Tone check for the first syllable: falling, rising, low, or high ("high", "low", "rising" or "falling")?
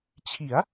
rising